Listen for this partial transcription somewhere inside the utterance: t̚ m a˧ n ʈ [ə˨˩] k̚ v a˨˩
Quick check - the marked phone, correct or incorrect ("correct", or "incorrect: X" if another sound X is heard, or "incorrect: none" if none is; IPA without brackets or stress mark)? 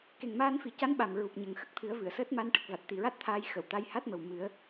correct